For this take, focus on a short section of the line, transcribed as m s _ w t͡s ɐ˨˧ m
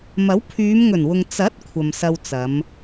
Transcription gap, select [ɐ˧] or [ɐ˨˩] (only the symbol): ɐ˧